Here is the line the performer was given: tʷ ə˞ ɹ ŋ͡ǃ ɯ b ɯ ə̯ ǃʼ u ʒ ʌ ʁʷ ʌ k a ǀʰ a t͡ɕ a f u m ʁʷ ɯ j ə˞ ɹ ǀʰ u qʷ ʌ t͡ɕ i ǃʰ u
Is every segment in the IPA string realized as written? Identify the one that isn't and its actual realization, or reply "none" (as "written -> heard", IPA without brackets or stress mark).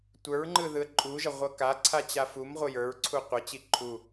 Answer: b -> ð